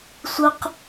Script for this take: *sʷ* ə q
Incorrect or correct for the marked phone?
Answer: correct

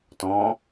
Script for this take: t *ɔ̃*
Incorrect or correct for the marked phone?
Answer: correct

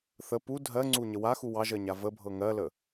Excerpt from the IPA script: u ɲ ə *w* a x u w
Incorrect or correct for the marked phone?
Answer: correct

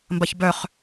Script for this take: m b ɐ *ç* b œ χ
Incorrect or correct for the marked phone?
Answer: correct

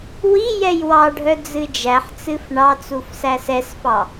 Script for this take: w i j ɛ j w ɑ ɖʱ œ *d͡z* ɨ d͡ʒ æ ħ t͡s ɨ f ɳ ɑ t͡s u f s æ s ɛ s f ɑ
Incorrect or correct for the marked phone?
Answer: correct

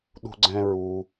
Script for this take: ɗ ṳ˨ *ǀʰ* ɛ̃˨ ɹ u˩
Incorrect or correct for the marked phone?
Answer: incorrect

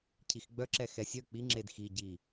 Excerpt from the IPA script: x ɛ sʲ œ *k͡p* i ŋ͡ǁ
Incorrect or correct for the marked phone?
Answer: correct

